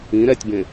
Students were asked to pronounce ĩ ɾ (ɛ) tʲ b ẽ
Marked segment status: correct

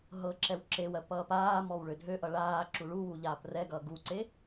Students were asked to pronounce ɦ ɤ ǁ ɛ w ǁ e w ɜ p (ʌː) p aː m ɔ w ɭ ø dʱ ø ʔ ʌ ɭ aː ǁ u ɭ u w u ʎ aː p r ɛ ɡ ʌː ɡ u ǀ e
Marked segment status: correct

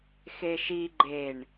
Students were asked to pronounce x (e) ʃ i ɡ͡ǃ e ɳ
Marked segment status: correct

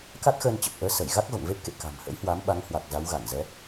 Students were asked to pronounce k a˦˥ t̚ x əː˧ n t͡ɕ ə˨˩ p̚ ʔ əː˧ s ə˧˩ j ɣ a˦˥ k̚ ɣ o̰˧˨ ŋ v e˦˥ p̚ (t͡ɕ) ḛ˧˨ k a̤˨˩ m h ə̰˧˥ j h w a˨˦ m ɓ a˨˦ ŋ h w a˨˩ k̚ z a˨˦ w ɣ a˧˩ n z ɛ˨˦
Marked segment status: incorrect: k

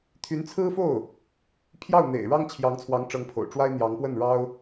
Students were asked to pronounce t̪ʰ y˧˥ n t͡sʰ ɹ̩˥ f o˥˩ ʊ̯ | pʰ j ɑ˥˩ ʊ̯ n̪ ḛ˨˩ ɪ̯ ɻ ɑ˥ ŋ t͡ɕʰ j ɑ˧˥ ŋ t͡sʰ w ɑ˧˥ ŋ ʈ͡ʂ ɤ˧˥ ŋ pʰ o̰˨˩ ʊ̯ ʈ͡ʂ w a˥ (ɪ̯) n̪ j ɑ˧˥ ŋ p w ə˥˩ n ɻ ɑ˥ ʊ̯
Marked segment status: correct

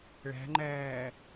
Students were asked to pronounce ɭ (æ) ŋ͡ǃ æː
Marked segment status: incorrect: æ̤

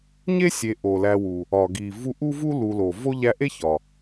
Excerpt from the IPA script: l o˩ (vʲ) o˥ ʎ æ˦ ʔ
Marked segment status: incorrect: v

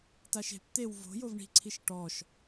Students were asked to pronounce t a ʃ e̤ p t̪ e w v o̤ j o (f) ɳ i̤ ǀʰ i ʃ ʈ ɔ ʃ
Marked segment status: incorrect: v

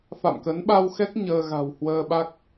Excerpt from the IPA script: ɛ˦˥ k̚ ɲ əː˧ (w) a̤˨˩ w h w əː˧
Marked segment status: incorrect: ɣ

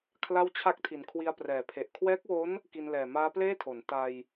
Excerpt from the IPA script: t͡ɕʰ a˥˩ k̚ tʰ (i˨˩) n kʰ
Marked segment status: correct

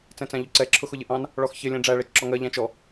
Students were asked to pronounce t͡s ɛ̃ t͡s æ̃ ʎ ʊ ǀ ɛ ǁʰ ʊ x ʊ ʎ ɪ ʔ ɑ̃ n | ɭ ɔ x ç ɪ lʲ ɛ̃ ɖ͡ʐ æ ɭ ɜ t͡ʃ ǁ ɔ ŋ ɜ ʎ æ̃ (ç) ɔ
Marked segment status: incorrect: t͡ʃ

